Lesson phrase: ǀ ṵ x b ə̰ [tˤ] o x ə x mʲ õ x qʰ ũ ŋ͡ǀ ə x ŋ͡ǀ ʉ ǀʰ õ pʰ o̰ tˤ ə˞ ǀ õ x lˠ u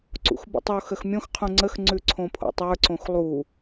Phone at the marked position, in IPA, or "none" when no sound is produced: tˤ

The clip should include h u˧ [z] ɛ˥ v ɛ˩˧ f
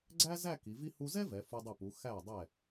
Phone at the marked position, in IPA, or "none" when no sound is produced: z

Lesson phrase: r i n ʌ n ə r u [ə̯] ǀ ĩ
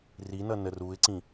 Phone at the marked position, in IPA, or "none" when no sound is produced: ɪ̯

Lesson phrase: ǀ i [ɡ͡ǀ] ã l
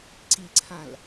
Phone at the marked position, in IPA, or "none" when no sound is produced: ǀʰ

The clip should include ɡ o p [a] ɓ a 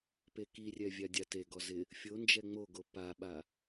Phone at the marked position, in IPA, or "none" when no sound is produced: a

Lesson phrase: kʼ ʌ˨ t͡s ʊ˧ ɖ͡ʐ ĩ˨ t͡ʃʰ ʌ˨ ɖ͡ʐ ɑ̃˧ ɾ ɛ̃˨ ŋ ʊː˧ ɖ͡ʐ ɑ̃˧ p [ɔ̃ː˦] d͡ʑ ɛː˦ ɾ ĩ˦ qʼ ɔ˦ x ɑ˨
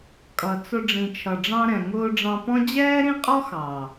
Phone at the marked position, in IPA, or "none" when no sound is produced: ɔ̃˦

